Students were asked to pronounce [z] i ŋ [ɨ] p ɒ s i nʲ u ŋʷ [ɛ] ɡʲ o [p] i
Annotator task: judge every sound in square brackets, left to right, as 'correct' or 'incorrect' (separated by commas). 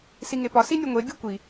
incorrect, incorrect, incorrect, incorrect